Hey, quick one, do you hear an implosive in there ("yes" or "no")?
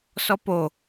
no